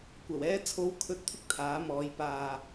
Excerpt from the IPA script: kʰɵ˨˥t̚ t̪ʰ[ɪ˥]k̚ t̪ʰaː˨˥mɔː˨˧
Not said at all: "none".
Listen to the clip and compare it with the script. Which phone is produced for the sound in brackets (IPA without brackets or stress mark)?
ɪ˥